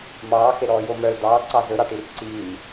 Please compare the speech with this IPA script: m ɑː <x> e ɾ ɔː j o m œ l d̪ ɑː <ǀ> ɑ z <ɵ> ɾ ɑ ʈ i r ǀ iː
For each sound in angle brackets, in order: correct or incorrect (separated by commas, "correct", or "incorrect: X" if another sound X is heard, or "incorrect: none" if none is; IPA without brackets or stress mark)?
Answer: correct, correct, correct